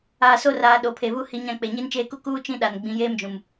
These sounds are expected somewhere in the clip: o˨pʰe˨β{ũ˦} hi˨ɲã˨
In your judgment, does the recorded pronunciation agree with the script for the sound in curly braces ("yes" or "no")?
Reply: no